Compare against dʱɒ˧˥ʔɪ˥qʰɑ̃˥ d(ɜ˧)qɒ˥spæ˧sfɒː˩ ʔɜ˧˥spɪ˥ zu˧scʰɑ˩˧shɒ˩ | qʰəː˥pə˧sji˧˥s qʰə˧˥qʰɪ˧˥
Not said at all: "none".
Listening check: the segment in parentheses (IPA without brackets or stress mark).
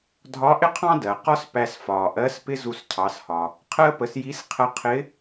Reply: ɜ˩